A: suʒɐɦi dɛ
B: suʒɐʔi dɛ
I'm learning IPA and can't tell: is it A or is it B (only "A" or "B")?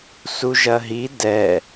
A